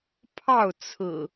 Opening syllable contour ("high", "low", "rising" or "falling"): falling